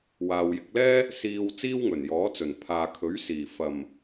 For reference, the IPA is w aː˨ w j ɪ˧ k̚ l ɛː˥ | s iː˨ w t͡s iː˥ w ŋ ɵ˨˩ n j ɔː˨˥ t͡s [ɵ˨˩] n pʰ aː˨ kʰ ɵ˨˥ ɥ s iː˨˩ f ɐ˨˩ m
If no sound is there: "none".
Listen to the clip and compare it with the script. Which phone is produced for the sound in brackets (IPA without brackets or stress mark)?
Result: ɵ˨˩